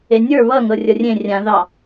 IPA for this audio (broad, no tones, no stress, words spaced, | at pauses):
enʲə˞ βʌ ŋɤrʲʌrʲẽ rʲã ðɑ